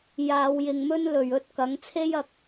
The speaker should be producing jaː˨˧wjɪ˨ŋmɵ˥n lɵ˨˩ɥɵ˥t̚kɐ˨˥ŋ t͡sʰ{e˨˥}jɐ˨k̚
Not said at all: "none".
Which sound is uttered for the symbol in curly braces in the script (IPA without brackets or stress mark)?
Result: e˥